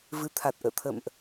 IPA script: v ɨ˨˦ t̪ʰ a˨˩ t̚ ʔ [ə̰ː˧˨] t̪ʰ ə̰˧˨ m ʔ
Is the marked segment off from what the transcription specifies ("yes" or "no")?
no